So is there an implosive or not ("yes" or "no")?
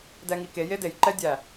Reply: no